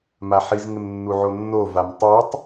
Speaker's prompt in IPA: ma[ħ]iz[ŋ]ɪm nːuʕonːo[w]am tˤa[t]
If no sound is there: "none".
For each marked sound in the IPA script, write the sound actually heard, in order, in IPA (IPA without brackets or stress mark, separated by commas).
ħ, ŋ, v, tˤ